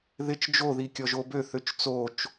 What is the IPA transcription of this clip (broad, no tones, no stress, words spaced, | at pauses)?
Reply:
ðɪt͡ʃ d͡ʒoði kʲɔʒobøθøt͡ʃ t͡sot͡ʃ